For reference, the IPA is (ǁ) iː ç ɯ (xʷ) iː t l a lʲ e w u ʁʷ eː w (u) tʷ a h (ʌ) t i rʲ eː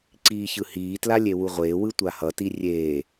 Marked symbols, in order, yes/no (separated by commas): no, no, no, yes